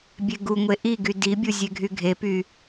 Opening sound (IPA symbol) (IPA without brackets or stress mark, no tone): bʲ